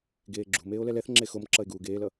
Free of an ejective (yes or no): yes